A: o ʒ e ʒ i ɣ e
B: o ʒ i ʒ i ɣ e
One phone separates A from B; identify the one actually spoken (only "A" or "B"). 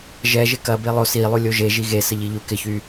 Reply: A